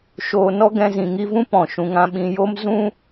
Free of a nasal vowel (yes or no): no